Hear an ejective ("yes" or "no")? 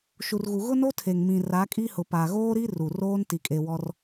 yes